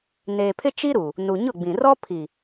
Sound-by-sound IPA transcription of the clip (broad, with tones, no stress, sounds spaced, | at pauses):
n eː˨ pʰ ɪ˦ t͡ʃ i˦ ɾ u˨ | n u˨ ɲ ʊ˦˨ ɡ͡b ĩ˨ r ɔ˦ pʰ i˨